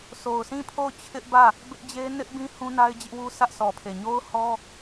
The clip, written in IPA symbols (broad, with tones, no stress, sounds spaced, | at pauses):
sʰ o˨ ʊ̯ sʰ ĩ˦˨ pʰ o˦˨ ʊ̯ t͡ɕʰ ɪ˦ ʔ b ä˦˨ | b ɪ˦ ʔ d͡ʑ e˦ n ɪ˦ ʔ b ĩ˦ h ũ˦ n a˦ ɪ̯ d͡ʑ ɪ˦ ʔ w u˦ sʰ ä˦ ʔ s ɔ˨ pʰ e˨ ɲ o˦ ʊ̯ h ɔ˦